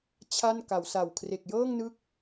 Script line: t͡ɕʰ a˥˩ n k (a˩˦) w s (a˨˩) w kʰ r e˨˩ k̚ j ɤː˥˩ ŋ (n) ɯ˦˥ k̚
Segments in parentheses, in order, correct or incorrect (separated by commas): correct, correct, correct